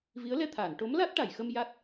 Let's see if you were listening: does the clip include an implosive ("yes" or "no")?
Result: no